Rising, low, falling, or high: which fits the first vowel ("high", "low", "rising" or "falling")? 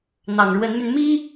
low